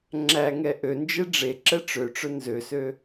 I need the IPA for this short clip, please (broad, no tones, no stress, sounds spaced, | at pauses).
ŋ͡ǁ æ ŋ ɛ ʔ ø n d͡ʒ e ɖ͡ʐ e ǁ ɛ ʈ͡ʂ ø ʈ͡ʂ ɵ n z ø s ø